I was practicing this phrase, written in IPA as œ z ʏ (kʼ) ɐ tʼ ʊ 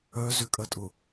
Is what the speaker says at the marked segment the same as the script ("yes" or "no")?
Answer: yes